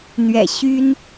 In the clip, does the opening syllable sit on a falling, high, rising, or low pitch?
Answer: low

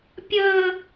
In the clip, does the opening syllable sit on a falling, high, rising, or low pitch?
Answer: high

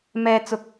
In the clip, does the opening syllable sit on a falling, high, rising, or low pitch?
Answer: high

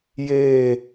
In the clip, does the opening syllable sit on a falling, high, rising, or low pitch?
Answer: falling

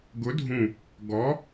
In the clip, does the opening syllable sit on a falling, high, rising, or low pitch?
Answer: rising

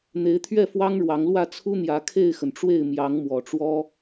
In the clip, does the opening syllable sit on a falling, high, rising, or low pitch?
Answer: rising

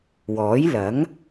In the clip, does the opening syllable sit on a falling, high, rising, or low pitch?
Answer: rising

